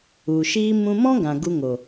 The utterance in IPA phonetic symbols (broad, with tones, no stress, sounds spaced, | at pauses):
u˨ ʃ iː˧ m ũ˧ m ɔ̃˦ ɡ ã˨ ɡ u˧ ŋ o˨